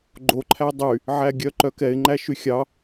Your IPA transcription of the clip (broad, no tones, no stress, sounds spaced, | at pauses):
ɡ͡ǃ o ǃʰ æ dˤ y | ʕ æ ɡʲ œ ǃ œ k ɛ ɪ̯ ŋ͡ǃ æ ʃ y xʲ ɑ